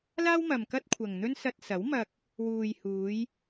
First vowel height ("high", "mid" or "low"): low